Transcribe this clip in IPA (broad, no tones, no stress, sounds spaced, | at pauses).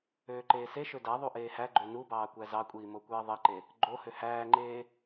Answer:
øː ǃ eː s e ʃ ø d æ ðˤ u ʔ eː h æ ɡ͡ǃ ø n u b ɑː kʷ æ z ɑ kʷʼ iː m o kʷ eː ðˤ i ǃ e | ɡ͡ǃ o h ø h æː ŋ͡ǃ eː